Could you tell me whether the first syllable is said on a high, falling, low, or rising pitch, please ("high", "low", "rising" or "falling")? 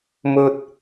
high